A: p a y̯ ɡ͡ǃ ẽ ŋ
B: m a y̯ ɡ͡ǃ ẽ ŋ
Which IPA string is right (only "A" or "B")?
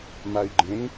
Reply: B